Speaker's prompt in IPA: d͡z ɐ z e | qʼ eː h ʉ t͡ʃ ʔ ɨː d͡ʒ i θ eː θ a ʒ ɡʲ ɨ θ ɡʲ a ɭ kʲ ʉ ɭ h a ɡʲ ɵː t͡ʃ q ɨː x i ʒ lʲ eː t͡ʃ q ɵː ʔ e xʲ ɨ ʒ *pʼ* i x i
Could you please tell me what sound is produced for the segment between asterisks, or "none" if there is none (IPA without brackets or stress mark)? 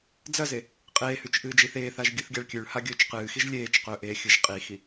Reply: qʼ